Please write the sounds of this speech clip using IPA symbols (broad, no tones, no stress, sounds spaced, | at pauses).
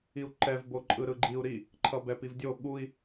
i u̯ ǃ ɛ v b o ǃʼ ɯ ɾ ɯ ɡ͡ǃ i u̯ ɾ i | ǃʰ ʌ b ɛ p i v dʲ o ɠ u i̯